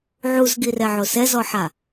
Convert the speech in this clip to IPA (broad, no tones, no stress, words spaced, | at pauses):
ʕuzɡirɛʕo sɛzɔħa